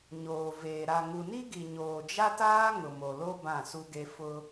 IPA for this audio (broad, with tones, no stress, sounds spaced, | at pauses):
ɲ oː˨ v eː˨ ɾ a˨ ŋ u˨ n i˦ ɡ i˨ ɲ oː˨ d͡ʒ a˦ t aː˦ ŋ ʊ˨ m o˨ l o˦ b ã˦˨ s u˦ ɡ e˦ f ʊ˦